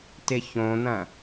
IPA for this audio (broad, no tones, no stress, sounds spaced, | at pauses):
t ɪ ç õ n̪ ɐ̃